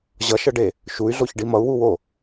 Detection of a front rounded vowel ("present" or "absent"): present